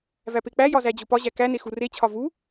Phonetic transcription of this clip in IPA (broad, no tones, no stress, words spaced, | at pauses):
væpek͡pæjɒ zæd͡ʑopɒʑæ kæne xuret͡ɕʰɒ vu